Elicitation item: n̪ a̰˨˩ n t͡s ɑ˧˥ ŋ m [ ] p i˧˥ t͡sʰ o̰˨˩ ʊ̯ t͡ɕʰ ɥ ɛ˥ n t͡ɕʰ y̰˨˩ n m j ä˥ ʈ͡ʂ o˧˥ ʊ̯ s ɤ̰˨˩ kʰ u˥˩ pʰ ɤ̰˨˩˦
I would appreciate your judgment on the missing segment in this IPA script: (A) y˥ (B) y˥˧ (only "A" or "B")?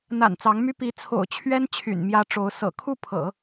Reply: A